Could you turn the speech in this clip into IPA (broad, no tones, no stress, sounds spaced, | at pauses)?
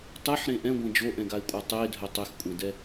tˤ ɛ ħ ɾ ẽ ʔ ɛ̃ ɡʷ ɛ̃ d͡ʒ o ʔ ɛ̃ ɡ a ɪ̯ kʷʼ a tˤ e dʱ œ tˤ e x kʷʼ ɛ̃ d ɛ